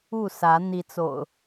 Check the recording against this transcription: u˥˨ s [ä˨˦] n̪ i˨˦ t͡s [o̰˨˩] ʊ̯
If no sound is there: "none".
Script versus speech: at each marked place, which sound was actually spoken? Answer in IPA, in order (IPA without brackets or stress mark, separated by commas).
ä˨˦, o̰˨˩